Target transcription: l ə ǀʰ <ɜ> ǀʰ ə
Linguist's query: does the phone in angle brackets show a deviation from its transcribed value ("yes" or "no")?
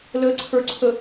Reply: yes